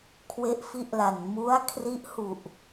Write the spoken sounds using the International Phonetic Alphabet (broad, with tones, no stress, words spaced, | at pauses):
kʰwe˦˥ʔfi˦˥ʔla˨˩n mu˦˥a̯ kʰri˦˥ʔhu˨˩ʔ